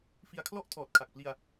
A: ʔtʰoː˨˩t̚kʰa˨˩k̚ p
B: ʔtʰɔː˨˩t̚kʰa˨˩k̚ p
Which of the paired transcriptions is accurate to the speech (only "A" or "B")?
B